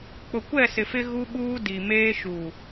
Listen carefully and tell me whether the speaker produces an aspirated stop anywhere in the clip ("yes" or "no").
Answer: no